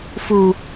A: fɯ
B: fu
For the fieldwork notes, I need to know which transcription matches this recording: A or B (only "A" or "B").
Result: B